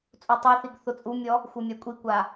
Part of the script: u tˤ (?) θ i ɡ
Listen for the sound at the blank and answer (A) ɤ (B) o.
B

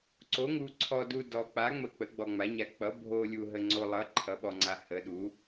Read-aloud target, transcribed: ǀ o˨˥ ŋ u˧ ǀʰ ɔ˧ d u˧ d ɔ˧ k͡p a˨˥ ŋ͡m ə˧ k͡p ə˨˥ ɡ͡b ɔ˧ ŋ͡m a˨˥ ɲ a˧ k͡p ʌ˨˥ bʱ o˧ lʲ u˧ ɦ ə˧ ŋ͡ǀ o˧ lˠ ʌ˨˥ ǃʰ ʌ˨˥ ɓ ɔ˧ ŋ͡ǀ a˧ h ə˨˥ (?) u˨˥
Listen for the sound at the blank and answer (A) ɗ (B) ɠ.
A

